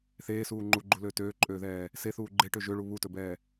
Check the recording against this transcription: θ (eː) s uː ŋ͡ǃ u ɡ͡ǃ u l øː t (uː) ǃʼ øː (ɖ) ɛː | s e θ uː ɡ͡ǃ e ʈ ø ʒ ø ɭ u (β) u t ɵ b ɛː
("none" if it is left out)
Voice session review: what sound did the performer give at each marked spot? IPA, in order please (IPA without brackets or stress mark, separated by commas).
eː, øː, ð, β